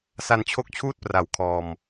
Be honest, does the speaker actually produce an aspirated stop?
yes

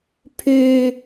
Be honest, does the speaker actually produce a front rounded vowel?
yes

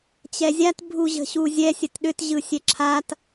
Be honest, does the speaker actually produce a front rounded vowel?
yes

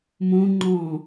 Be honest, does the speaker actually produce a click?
yes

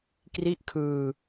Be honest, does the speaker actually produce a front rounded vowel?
no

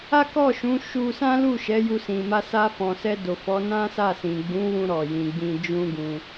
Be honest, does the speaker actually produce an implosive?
no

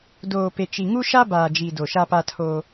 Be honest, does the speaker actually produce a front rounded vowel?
no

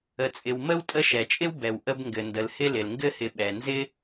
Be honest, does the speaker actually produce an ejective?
yes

